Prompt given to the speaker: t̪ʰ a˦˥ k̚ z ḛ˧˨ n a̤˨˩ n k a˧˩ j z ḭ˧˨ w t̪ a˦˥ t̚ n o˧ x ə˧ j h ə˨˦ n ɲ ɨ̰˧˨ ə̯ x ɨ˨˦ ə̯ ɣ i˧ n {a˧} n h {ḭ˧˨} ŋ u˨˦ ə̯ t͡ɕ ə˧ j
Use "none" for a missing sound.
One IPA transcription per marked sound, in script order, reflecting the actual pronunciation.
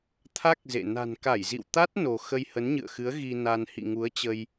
a˧, ḭ˧˨

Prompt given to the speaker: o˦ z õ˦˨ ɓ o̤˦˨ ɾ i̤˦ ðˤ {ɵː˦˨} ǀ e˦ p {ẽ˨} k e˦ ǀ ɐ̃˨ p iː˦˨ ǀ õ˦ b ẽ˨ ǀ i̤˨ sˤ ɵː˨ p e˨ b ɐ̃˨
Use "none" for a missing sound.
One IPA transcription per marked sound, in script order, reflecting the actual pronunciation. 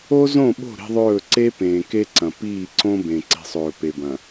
ɵː˦˨, ẽː˨

